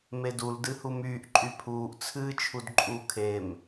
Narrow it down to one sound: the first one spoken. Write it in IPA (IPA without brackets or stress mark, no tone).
m